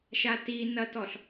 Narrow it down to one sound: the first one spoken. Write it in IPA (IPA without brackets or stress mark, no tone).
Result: ʃ